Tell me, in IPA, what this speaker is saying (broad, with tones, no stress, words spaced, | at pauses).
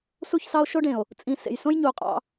su˦˨çsɑ˦o̯ ʃo˦ɖẽ˨o̯ | t͡sʼĩ˨ sḛ˨jsõ˦jɲu˨o̯qʼɑ̰˦